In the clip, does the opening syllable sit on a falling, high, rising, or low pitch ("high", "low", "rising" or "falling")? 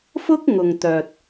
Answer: high